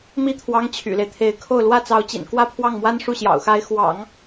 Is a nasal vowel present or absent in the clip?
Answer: absent